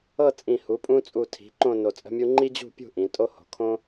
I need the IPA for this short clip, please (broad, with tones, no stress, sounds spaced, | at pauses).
ɤ˥˧ t͡sʼ ĩ˧˩ h u˩˧ pʼ ũ˧ t͡sʼ u˧˩ tʰ i̤˩˧ ǃ õ˥˧ n o˧˩ t͡sʼ ə̤˥ mʲ u˥ ŋ͡ǃ i˥ d͡ʑ ṳ˥˧ pʲ ṳ˥˧ ʔ ĩ˩˧ tʼ o˥ h o̤˩˧ kʰ õ˥